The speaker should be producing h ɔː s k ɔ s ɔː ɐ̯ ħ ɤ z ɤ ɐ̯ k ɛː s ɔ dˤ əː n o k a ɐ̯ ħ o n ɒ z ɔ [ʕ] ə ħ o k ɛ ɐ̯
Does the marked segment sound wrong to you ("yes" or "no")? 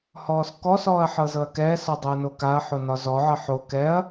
no